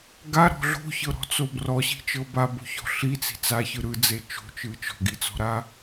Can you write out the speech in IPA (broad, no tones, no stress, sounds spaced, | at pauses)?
ɡ a ɾ ɔ̤ ɮ o̤ ç ɤ ɾ ɔ̤ t͡s o b r ɔ ɕ i̤ t͡ʃ ɤ b a b o̤ ç ɔ̤ ɬ i t͡s i̤ t͡s a ç ɯ ɾ ɯ d͡z e t͡ʃ o̤ t͡ʃ ɯ t͡ʃ ɔ̤ ɡ i t͡s ɔ̤ ɾ a